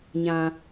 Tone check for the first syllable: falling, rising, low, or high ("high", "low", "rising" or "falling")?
high